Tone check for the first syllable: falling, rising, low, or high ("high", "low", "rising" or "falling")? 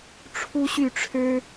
high